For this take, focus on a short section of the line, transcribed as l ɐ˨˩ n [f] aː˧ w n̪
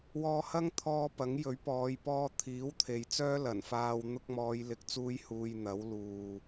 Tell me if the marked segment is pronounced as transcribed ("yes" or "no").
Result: yes